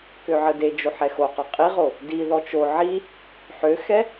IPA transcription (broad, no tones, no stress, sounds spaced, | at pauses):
k ø ʕ ə d e d͡ʒ o ħ ɛ x o q ɔ qʼ i ʁ o | d i ð ɔ t͡ʃ o ʕ i | ħ ø x ɛ